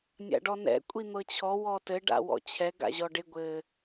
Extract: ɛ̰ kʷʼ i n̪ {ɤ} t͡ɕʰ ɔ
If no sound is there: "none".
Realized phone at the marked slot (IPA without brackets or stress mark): ɤ